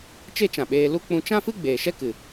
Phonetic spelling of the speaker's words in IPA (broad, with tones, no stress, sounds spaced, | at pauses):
t͡ʃ e˦ t͡ʃ ã˨ ɓ eː˧ l u˦ k͡p ũ˧ t͡ʃ ã˦ f ɨ˦ ɡ͡b eː˨ ʃ ɛ˦ k ɨ˨